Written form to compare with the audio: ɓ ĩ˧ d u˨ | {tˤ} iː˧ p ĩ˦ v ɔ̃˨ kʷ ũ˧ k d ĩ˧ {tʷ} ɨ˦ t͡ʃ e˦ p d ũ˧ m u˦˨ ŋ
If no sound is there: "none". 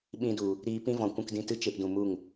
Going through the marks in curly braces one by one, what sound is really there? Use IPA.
ɾ, t

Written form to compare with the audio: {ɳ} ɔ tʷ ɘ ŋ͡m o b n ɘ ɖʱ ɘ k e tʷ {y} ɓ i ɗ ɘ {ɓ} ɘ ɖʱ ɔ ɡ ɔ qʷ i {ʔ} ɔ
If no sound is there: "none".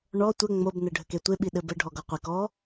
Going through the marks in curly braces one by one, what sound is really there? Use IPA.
ɳ, e, b, k

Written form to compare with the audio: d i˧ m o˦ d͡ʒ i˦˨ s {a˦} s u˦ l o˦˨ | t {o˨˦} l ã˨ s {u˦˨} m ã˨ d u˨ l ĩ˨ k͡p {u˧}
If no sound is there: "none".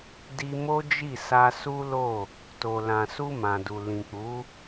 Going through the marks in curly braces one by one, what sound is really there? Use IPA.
a˧, o˨, u˧, u˨˦

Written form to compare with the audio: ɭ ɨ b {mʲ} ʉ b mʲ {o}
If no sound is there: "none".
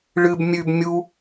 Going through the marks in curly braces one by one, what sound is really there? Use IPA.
mʲ, u

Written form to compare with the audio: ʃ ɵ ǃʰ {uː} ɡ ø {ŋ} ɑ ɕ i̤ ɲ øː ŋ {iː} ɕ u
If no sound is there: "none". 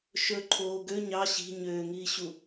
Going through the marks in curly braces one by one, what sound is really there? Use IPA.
oː, ɲ, iː

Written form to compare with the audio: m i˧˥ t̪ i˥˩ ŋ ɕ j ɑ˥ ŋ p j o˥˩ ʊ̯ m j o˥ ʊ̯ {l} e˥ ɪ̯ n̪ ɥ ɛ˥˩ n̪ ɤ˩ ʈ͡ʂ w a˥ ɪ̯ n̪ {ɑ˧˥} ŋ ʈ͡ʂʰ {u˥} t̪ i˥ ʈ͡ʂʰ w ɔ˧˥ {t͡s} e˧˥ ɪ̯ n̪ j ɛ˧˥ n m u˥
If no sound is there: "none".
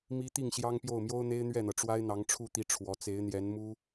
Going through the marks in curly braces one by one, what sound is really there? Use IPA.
n̪, ɑ˧˥, u˥˩, t͡s

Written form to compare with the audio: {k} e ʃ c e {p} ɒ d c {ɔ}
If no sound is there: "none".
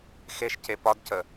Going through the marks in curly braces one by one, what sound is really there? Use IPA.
x, p, ə

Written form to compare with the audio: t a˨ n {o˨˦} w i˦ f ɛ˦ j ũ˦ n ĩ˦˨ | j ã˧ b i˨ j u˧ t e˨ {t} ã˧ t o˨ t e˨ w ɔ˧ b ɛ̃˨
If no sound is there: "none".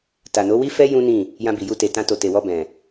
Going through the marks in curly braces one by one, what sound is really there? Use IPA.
o˨˦, t

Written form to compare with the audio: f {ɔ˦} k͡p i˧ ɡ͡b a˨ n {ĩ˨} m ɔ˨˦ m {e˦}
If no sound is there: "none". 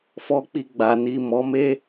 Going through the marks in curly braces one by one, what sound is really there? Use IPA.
ɔ˧, i˨, e˦

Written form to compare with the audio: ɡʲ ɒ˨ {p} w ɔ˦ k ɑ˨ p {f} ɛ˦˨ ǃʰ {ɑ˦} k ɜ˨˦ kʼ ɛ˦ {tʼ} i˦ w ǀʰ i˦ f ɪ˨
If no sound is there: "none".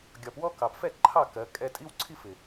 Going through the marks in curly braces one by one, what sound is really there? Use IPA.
p, f, ɑ˦˨, tʼ

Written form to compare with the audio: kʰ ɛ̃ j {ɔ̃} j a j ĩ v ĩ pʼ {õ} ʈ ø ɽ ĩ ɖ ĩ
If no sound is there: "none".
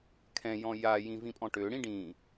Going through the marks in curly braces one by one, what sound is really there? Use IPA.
ɔ̃, ɔ̃

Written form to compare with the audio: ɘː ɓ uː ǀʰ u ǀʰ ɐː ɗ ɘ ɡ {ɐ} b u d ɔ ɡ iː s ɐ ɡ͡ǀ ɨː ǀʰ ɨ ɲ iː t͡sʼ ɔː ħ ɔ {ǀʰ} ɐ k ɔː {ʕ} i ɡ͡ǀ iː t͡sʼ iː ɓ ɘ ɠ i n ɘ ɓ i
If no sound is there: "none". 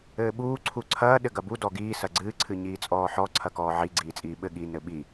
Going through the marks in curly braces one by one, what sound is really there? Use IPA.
ɐ, ǀʰ, ʕ

